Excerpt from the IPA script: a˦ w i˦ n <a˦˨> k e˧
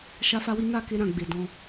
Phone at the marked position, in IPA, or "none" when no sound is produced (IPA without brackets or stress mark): a˦˨